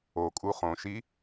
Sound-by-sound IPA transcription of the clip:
okʼu χõʃi

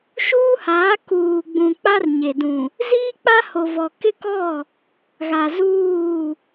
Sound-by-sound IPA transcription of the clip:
ʃuː˦haː˨˦ kuː˨ɡ͡bũ˨ k͡pa˦rɲe˨ dũ˨ | ziː˦k͡pa˦ho˨vɔ˨ kɪ˦kɔ˦˨ | ɣa˨zuː˦˨

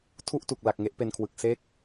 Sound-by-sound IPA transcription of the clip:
tʰu˥˩ʔtu˨˩k̚ la˨˩k̚ŋe˥˩ʔpe˧nkʰwɯ˨˩k̚ se˦˥k̚

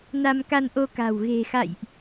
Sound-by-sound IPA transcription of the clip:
na˧mka˧nʔo˧ka̤˨˩w ɣe̤˨˩xa̰˧˨jʔ

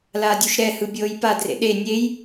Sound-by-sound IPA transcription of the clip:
laːdʲuʃɾɛhɯ bʲɤːjpadrḛ ɗe nʲej

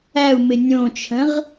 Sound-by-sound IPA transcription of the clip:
æu̯mɪ nʲõt͡ʃʰə̃ʁ

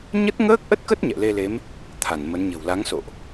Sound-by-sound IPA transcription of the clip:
ɲə˦˥t̚ŋəː˦˥k̚ʔə˦˥t̚kə˦˥t̚ ɲɛ̰˧˨le˧le˨˦m | t̪ʰa˧˩nmə˨˦nɲə̤˨˩w la˨˦ŋso̰˧˨ʔ

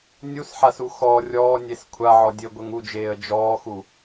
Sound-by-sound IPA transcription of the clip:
nʲusħasu xɔ rʲɔːnʲes kʷʰaʕɔ dʲɘɡʷɘŋ ud͡ʒeːə̯ d͡ʒɔːxu

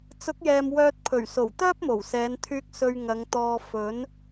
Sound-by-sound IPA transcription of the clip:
t͡sʊ˨˥k̚jɛː˨m wœː˧t̚pʰɵ˨˩ɥso˨˩w t̪œː˥p̚mo˨˩wsɛː˨˧nt̪ʰyː˧k̚ sɵ˧ɥ ŋɐ˨˧ŋt̪ɔː˧ fɵ˨˥n

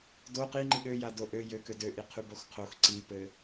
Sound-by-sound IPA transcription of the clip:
do qiŋ͡ǃi ɠøja doʔø jø kødøʔi qʰʉboxqʰox ǀipɘ

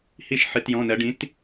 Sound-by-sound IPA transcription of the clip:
hi˦˨ʃ ħɨ˩˧˩tjɔ̃˩˧˩nɜ˩˧ ɖĩ˨˥t

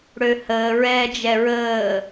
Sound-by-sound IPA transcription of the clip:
ɽøhəː ɹɛːd͡ʒɛɹəː

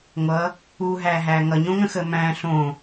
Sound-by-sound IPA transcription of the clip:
ŋʷʌ | uɦæɦæ ŋʌɲõŋə̃xə mæ̃ ɬõ

